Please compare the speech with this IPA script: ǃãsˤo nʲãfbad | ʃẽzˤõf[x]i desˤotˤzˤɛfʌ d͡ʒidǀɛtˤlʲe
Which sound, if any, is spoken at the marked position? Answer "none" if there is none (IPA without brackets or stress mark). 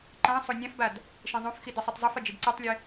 x